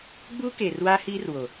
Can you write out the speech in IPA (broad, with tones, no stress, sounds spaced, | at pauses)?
ɡ͡b uː˦ k eː˨ r w aː˦ h iː˦ r w o˨